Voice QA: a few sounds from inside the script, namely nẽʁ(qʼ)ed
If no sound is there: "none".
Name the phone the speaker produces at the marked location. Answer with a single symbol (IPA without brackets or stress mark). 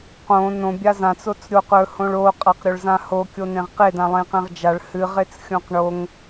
q